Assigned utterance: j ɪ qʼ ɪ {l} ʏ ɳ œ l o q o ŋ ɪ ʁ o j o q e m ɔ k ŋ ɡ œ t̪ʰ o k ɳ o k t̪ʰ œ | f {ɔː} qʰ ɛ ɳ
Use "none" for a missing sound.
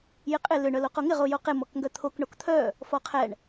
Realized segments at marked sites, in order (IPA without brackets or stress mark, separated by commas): l, ɔ